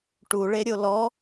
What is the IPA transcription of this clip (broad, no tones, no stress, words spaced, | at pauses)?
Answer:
ʈuɭeɾʲo lɔ